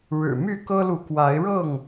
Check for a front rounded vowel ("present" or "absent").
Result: present